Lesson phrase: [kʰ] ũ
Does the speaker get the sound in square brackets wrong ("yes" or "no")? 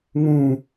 yes